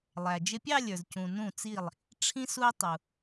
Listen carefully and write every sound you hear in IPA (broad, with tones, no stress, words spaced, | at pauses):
lˠæ˩ d͡ʒɪ˧pʲɑ˥˧lʲə˞˩zcũ˩ nũ˧˩t͡si˧˩lˠ | ʈ͡ʂʰĩ˧su˧ɪ̯ tˤu˩